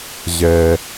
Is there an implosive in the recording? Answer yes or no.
no